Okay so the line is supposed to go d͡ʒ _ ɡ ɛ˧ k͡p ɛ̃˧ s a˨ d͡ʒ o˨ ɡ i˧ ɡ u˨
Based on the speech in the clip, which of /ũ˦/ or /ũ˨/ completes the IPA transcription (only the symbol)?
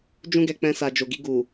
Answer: ũ˦